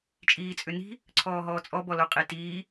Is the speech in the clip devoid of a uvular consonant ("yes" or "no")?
no